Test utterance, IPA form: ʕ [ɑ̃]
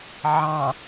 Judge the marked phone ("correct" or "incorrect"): correct